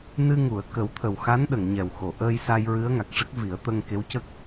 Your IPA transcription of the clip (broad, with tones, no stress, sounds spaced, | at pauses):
n ɨ˧ ŋ u˨˩˨ ə̯ k ə˨˩˦ w t̪ʰ ə˨˩ w x a˧˥ n ɗ ə˨˩˨ ŋ ɲ ɛ˨˩ w x o˨˩˨ ʔ əː˧ j s a˧ j ɹ ɨ˧˥ ə̯ ŋ a˨˩ k̚ ʂ ə˦˥ k̚ v i˨˩˦ ə̯ t̪ ə˧ ŋ k e˧˥ w c ə˦˥ k̚